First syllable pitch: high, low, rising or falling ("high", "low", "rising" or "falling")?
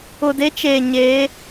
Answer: low